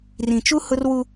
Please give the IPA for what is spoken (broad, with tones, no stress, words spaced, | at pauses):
rĩ˨t͡ʃu˦ hʊ˦rwu˦